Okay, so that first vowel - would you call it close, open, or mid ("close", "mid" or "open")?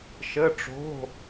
mid